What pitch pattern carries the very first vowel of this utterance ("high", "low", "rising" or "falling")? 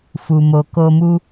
low